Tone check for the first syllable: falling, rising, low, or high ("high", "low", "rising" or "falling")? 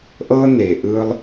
high